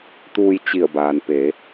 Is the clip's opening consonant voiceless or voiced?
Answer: voiceless